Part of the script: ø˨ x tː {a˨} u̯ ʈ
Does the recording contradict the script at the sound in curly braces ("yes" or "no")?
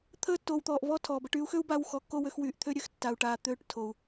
no